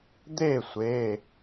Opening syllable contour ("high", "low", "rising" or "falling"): falling